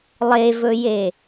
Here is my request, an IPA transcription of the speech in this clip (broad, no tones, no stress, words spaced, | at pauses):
lˠevɵje